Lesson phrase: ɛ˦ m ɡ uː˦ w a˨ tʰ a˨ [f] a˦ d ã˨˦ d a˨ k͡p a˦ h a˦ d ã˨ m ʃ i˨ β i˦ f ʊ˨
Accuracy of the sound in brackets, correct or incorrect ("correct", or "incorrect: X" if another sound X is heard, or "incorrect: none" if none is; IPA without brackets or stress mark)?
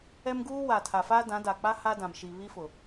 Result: correct